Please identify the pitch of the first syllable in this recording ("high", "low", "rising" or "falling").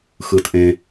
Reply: low